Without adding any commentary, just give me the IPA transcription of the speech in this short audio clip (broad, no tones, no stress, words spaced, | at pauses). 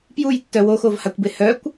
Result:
pjujtːœ woxovhakʷbe hœkʷ